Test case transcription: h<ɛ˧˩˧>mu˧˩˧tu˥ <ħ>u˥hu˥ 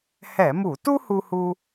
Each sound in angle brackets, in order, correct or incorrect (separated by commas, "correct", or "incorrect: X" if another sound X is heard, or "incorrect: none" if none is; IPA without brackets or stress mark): correct, incorrect: h